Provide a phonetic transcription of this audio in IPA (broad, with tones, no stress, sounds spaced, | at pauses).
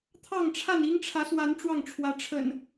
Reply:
t̪ʰ ɑ˥˨ ŋ ʈ͡ʂʰ a˥˨ n i˦ ŋ ʈ͡ʂʰ ä˨˦ s w a˨˦ n ʈ͡ʂ w ɑ˥˨ ŋ ʈ͡ʂʰ w ä˨˦ ʈ͡ʂʰ ə̰˨˩ n